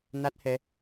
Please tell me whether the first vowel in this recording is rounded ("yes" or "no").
no